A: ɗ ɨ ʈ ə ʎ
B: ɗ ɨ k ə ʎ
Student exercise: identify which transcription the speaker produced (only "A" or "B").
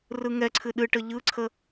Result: A